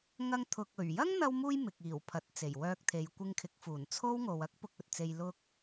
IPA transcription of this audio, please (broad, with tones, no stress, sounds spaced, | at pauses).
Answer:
ŋ ɐ˧ ŋ t̪ʰ ʊ˨ k̚ ɵ˨˩ ɥ j ɐ˥ ŋ n̪ ɐ˧ w m uː˧ j m ɪ˨ k̚ iː˨˩ w pʰ ɐ˨ t̚ t͡s e˨˩ j w œː˧ k̚ t̪ʰ e˨˧ j kʷ ɪ˧ ŋ kʰ ɪ˨˥ k̚ f uː˨˩ n t͡sʰ o˥ w ŋ o˨ w ɐ˥ k̚ p ʊ˧ k̚ ɵ˨ t̚ t͡s e˧ j l ʊ˧ k̚